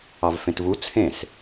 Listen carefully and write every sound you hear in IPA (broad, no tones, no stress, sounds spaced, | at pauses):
ɑ v f ẽ t v u t͡sʰ ẽ s